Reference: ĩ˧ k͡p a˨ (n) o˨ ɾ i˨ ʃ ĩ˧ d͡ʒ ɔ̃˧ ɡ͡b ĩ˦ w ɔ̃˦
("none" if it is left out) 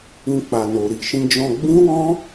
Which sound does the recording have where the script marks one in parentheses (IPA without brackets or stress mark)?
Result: n